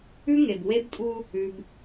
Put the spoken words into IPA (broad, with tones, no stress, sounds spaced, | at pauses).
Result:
ʉ˦ ŋ e˨ b w e˦ b tʼ u˦ | ʉ˦ b